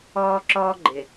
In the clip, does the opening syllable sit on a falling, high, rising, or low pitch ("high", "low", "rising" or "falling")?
high